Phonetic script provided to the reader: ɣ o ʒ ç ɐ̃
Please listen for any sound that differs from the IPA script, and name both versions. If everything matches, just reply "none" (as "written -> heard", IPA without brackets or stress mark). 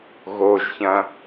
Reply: none